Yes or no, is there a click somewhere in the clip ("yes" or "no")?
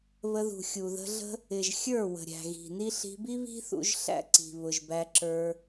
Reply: yes